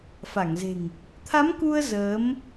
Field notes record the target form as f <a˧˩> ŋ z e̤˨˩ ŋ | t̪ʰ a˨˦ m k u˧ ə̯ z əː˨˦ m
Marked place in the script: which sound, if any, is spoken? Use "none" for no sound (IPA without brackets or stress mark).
a˧˩